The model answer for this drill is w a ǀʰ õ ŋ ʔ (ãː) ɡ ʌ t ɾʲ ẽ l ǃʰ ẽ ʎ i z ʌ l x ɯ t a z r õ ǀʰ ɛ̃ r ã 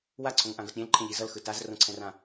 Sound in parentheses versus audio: incorrect: ã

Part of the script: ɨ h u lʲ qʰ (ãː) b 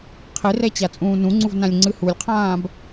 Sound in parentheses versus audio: correct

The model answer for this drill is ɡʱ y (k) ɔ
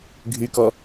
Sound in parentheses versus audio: correct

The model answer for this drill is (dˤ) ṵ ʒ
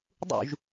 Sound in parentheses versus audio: correct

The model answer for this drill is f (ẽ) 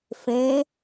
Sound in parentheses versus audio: correct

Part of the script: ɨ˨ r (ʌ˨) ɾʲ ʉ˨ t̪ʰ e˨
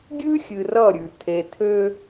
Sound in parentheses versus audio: incorrect: ʌ˦˨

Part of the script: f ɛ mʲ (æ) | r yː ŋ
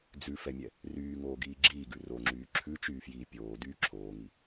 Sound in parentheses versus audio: incorrect: ɛ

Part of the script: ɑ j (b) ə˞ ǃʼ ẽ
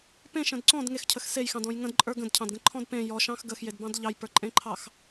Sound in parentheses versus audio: incorrect: p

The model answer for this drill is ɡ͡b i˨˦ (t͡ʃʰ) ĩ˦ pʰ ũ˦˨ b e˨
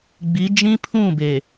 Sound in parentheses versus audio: incorrect: d͡ʒ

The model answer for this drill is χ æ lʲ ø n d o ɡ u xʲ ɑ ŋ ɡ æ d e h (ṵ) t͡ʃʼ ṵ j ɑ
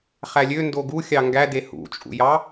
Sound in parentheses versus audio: correct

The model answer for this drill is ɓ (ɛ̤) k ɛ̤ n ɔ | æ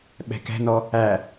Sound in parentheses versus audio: correct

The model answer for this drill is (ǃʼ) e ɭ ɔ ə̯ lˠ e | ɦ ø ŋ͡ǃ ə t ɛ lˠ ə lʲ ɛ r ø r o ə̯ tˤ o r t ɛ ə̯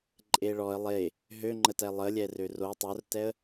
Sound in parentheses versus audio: correct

